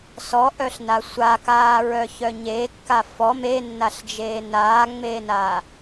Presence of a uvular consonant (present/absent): absent